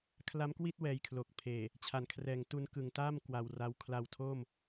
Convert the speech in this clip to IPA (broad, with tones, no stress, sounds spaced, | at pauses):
kʰ l a˦˥ m k w i˥˩ t̚ w ɛː˧ j kʰ l o˨˩ k̚ pʰ eː˨˩ | t͡ɕʰ a˨˩ n kʰ r ɛː˨˩ ŋ t u˧ n k ɯ˨˩ ŋ t aː˥˩ m k w a˧ w r a˦˥ w kʰ l a˧ w tʰ o˥˩ m